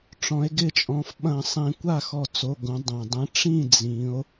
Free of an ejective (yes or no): no